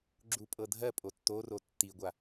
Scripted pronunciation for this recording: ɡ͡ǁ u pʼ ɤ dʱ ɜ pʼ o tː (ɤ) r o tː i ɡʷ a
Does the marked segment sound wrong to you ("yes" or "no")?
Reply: yes